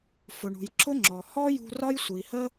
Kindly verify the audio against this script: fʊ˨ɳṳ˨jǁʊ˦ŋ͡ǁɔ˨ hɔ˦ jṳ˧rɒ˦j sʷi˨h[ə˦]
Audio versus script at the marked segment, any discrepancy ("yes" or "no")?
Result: no